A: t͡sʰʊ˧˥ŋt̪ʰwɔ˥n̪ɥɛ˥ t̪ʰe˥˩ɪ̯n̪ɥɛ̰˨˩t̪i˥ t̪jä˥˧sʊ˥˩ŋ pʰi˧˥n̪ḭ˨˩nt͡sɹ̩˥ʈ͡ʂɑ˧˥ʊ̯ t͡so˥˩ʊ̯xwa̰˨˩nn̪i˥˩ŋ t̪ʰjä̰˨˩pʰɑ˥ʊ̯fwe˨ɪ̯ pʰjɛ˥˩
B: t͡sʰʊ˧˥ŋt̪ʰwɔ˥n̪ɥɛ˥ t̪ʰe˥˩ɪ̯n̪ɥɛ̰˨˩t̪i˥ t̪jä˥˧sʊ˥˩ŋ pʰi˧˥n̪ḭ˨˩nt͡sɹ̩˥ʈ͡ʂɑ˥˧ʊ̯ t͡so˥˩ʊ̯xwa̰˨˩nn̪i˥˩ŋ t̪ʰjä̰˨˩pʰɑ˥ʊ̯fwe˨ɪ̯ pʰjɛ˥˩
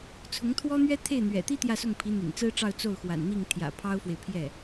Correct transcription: B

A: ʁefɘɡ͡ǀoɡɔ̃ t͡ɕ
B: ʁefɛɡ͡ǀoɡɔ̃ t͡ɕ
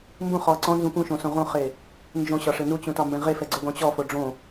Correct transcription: B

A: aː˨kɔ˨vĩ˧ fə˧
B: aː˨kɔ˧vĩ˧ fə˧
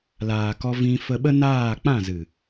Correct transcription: B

